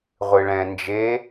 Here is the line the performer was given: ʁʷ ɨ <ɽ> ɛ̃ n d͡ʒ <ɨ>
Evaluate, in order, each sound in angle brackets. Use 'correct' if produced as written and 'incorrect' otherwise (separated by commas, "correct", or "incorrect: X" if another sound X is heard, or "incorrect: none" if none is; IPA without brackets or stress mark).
incorrect: ɭ, incorrect: e